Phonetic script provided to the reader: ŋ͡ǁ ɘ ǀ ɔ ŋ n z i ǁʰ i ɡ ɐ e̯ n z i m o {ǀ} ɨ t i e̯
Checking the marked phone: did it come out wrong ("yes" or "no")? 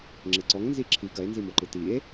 yes